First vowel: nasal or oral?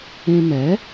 nasal